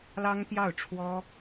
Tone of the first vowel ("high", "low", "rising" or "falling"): high